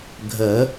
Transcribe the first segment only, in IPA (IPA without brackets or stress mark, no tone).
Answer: ɡʱ